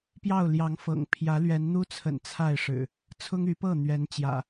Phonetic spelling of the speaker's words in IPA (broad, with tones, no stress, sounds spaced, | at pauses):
p j ɑ˥˨ ʊ̯ l j ɑ˨˦ ŋ f ɤ̰˨˩ ŋ pʰ j ä˨˦ l ɥ ɛ˨˦ n n̪ u˦ t͡sʰ ə̰˨˩ n t͡sʰ a˥˨ ɪ̯ ʂ ɻ̩˨˩ | t͡sʰ ʊ˦ ŋ y˨˦ p ɤ˥˨ n̪ ɥ ɛ˨˦ n t͡ɕ j ä̰˨˩